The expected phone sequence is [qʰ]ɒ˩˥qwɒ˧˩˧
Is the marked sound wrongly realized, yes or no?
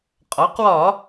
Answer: yes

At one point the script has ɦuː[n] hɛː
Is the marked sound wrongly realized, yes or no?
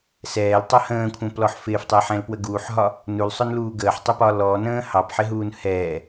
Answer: no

